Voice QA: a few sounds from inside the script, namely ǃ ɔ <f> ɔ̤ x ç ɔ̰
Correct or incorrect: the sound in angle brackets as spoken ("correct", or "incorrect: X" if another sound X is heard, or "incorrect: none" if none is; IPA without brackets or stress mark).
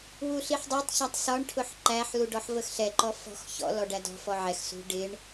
correct